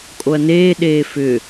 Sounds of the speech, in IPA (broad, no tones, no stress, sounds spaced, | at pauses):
kʼ o ɐ̯ n eː ɗ eː f ʏ